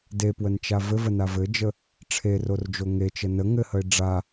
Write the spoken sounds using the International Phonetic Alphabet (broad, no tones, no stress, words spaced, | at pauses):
depwənt͡ʃa vɘvəna vɘd͡ʒə | ʈ͡ʂʰerord͡ʒo ŋet͡ʃə nə ŋɘhəɪ̯ ɖ͡ʐa